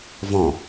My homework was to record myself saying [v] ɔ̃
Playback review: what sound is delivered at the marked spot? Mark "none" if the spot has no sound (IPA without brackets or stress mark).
v